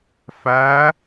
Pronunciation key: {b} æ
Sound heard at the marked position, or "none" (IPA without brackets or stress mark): f